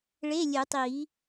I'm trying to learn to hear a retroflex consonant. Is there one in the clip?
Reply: yes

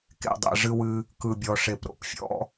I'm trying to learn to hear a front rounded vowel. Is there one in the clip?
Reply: no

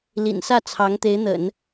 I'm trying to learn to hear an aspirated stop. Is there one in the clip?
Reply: yes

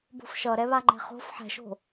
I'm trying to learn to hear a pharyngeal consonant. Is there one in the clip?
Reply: yes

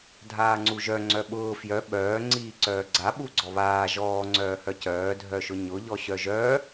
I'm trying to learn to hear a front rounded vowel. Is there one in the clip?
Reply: yes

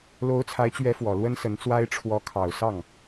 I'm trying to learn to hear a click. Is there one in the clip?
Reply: no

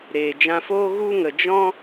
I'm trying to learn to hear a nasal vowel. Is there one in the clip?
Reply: yes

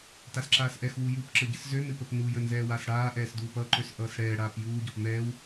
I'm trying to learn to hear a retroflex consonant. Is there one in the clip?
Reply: yes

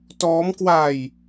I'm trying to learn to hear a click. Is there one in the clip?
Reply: no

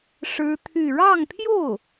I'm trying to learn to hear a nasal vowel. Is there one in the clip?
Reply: no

